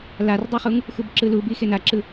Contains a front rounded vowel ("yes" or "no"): no